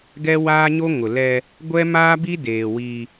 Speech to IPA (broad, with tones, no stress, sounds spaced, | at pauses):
ɡ ɛ˦ w aː˦ ɲ o˦ ŋ ʊ˨ l ɛ˦ | ɡʷ ɛ˦ m aː˦ b i˦ d eː˨ w i˦